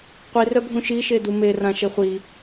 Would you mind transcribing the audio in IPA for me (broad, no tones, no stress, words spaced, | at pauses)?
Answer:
qʷirœbʱũ ʃiʃedu merã ʃeχʷi